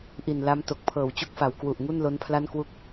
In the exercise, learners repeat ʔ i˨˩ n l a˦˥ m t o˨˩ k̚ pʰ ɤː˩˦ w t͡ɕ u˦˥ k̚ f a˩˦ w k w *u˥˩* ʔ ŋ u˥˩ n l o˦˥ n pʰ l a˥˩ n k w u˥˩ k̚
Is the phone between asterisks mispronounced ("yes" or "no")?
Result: yes